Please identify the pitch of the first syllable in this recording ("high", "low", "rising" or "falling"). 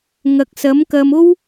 low